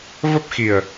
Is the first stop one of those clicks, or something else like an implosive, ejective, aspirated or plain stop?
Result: plain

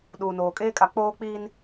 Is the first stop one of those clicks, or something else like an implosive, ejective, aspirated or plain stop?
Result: implosive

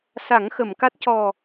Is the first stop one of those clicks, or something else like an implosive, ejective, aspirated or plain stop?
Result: plain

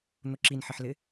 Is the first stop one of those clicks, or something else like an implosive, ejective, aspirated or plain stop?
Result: click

